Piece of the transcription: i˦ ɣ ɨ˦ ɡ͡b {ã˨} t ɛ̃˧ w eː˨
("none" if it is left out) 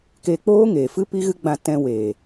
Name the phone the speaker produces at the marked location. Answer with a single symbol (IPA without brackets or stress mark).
ã˧